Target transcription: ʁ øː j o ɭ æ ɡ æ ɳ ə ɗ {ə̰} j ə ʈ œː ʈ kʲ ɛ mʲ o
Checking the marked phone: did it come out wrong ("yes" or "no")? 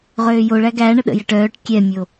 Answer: no